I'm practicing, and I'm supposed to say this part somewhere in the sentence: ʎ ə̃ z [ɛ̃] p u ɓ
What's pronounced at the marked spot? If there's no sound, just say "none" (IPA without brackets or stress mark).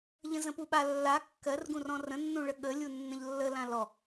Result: ə̃